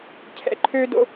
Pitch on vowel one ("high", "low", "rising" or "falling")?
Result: low